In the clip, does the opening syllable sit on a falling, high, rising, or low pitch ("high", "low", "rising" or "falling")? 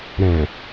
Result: low